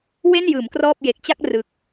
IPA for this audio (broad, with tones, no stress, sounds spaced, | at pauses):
w e˥˩ n j ɯː˩˦ m k r ɔː˥˩ p̚ j e˨˩ k̚ t͡ɕ a˥˩ k̚ r ɯ˨˩ k̚